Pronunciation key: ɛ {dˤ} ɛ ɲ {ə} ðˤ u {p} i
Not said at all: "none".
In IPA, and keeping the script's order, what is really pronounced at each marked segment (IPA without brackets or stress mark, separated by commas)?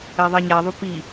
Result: ðˤ, a, p